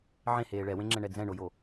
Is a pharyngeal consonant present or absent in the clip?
present